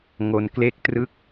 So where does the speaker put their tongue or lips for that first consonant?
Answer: velum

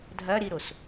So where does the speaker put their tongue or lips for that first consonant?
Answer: tongue tip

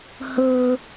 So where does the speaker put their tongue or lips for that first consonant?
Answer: throat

